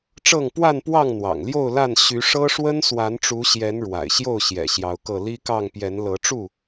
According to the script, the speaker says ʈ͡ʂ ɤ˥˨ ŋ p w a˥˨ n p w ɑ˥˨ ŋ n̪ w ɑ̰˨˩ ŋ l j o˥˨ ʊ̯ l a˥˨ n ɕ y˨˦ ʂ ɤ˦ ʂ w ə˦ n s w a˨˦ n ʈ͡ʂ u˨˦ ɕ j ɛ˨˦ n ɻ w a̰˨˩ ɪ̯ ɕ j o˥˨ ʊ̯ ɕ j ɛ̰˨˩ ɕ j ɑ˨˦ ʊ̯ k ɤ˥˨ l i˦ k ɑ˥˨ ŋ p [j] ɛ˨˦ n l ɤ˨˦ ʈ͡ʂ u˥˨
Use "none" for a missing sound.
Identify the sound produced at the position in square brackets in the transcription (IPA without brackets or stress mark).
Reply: j